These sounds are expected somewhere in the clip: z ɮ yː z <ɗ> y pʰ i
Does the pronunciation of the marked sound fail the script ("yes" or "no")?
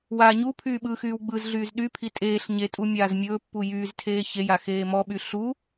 no